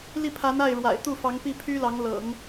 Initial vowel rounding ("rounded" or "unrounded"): unrounded